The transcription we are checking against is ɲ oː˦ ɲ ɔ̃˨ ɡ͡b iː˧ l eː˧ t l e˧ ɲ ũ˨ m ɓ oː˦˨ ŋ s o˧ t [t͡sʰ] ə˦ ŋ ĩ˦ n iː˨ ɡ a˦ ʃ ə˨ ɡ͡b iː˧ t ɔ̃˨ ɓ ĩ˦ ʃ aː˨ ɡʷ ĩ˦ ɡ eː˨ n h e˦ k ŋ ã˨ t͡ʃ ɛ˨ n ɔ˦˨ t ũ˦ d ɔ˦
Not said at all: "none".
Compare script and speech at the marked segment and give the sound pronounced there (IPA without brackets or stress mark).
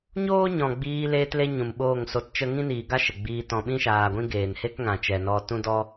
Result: t͡ʃ